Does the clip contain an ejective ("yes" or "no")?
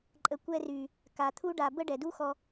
yes